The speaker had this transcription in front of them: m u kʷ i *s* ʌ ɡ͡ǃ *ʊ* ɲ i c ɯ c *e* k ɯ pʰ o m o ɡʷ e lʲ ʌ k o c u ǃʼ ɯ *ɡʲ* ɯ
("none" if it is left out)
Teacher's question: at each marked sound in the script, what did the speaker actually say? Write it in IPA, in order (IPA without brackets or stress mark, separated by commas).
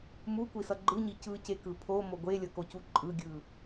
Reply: s, ɯ, e, ɡʲ